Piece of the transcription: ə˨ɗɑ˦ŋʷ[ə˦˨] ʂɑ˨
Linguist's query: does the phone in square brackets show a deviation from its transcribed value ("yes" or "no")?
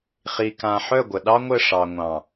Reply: no